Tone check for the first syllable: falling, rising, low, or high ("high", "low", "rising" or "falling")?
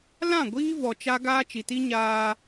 falling